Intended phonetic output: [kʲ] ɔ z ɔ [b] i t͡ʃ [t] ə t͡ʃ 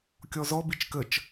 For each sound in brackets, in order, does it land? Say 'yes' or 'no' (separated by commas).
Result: yes, yes, no